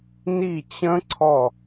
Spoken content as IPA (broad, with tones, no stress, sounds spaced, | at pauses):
n i˦˨ t͡ɕ ə̃˦˥ ǀʰ ɔ˦˨